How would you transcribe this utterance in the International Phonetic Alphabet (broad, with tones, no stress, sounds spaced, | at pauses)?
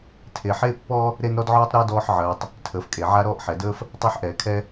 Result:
tʰ e˩ ħ e˥ pː ɔ˥ | ɾ e˥ n ɾ ɔ˥ d ʕ ɔː˥ tˤ ɾ əː˥ d ɔː˥ ħ ʕ əː˩ tˤ | tʰ əː˩ f kʼ e˩ ʕ a˥ ɾ ɔː˥ ʔ ħ ɛ˩ d əː˥ f | tˤ a˥ ħ ʔ ɛː˩ kʰ ɛ˥